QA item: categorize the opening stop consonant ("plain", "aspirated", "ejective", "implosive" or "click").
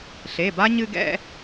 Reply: plain